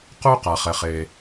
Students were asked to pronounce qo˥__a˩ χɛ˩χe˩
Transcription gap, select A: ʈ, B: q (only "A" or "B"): B